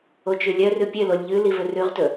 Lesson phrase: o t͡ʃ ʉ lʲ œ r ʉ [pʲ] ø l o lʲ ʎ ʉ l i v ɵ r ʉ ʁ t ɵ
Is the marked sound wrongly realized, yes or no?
no